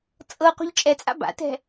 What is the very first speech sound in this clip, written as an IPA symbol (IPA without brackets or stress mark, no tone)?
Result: t͡sʼ